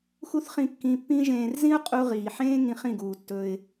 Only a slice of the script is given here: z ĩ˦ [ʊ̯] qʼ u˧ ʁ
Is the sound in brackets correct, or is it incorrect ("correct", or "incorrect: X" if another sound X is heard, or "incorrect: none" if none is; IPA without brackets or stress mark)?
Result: correct